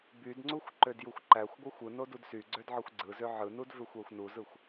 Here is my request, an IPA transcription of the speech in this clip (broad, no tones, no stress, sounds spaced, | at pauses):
b y d ŋ͡ǀ u xʷ ǃ ø d j u xʷ ǃ æ xʷ ɡʷ æ xʷ ɯ n o d u d s y ɡ͡ǀ ø d ʕ ɯ xʷ ɡ͡ǀ ɯ z ø ʕ ɯ n u d v ø xʷ æ xʷ n u z ɯ xʷ